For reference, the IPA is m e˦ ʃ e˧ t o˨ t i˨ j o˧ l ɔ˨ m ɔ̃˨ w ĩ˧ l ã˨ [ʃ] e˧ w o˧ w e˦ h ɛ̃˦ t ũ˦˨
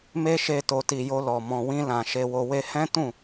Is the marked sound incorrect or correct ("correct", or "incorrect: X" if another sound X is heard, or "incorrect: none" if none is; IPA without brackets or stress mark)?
correct